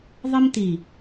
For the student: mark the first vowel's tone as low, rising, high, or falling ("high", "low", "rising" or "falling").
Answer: high